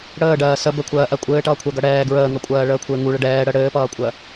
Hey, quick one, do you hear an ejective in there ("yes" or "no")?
yes